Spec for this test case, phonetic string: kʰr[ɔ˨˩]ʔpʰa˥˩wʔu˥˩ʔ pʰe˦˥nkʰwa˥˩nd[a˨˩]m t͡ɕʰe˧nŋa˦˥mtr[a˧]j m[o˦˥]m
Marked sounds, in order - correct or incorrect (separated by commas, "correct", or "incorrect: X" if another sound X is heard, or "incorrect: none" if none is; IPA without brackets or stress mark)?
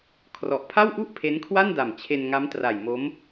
correct, correct, incorrect: a˨˩, correct